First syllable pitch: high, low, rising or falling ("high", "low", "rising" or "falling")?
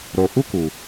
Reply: low